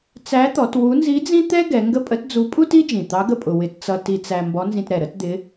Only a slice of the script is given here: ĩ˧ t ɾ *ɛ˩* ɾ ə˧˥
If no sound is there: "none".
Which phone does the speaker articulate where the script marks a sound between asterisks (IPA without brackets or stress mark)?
ɛ˩